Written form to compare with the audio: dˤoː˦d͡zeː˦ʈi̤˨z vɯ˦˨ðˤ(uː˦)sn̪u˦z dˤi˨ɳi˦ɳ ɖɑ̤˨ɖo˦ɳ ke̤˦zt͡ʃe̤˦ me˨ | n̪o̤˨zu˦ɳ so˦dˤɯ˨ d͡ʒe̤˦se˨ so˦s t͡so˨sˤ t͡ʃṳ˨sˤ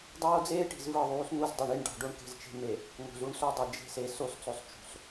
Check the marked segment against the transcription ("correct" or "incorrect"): correct